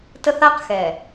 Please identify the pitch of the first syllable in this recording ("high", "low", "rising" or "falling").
high